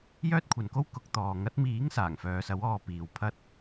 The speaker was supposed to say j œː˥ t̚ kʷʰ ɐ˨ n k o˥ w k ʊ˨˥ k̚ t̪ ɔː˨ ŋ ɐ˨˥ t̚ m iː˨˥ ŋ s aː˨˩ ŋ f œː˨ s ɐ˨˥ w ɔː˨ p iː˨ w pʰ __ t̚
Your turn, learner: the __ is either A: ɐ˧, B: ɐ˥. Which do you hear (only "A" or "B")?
A